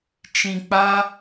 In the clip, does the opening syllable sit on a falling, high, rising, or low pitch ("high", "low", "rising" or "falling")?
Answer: low